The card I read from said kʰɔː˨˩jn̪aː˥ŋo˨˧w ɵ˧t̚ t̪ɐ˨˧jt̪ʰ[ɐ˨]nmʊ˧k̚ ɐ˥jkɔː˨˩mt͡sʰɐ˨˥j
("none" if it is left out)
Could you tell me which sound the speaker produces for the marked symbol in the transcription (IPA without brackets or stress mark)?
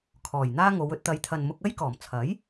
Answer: ɐ˨